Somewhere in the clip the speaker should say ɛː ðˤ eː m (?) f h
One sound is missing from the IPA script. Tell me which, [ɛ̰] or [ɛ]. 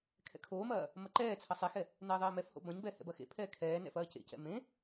ɛ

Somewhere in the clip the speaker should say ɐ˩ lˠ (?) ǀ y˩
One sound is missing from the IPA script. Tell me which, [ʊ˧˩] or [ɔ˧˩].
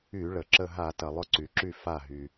ʊ˧˩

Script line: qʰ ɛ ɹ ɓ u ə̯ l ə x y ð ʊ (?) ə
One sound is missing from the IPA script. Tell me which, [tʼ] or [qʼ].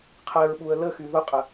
qʼ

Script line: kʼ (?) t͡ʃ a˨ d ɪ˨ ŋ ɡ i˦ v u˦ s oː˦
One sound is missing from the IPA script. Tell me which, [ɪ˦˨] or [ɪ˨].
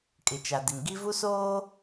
ɪ˨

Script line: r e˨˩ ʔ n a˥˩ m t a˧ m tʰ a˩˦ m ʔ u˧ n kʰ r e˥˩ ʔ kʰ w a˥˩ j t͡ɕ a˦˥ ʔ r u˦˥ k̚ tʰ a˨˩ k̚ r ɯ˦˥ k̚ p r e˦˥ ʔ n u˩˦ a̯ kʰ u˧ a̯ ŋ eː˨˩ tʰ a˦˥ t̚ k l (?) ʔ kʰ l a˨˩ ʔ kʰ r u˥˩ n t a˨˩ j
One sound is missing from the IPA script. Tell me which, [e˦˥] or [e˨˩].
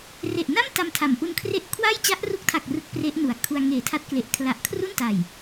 e˨˩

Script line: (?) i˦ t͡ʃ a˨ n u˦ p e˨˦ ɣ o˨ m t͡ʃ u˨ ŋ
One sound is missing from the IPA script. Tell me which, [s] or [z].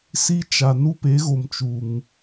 s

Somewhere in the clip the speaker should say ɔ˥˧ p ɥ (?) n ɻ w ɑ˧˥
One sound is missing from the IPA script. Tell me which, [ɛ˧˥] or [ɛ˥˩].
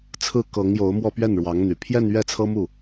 ɛ˥˩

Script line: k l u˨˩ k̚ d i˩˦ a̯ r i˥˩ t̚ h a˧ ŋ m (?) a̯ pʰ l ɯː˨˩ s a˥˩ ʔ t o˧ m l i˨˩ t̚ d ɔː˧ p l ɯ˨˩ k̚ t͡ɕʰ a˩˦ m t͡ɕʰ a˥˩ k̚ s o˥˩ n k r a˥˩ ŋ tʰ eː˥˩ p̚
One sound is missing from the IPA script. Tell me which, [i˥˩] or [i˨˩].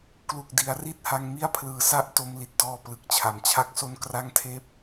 i˥˩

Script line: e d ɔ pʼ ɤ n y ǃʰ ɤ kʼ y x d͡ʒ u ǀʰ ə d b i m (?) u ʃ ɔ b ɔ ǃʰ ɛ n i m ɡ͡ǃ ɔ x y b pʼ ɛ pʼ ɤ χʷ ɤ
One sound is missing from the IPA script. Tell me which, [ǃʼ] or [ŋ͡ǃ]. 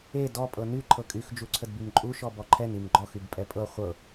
ǃʼ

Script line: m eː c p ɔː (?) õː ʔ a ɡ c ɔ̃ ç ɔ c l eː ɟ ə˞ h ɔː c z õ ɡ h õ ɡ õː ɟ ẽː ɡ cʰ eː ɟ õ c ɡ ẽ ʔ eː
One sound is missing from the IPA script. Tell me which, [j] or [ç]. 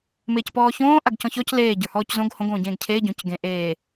ç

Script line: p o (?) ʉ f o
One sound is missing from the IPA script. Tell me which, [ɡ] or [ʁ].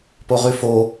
ʁ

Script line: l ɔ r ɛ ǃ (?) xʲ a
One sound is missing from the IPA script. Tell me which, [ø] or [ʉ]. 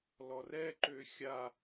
ø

